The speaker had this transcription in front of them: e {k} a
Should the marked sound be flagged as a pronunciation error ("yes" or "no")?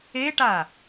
yes